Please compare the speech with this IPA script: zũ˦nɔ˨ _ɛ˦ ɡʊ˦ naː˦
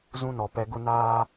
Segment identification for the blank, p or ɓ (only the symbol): p